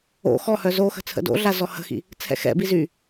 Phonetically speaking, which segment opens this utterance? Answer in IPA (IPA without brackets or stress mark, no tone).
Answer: o̰